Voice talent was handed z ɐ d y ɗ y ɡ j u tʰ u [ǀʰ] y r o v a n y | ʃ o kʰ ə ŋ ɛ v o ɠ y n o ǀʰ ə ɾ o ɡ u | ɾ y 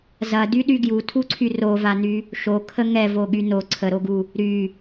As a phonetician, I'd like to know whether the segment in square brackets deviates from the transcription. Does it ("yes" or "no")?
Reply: no